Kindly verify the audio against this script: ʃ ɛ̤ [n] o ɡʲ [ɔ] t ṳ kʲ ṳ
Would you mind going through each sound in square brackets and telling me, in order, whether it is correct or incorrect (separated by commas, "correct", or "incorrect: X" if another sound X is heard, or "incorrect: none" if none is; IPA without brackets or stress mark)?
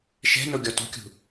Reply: correct, correct